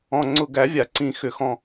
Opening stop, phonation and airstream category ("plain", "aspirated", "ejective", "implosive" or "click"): click